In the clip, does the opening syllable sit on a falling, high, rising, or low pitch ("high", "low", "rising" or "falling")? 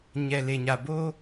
low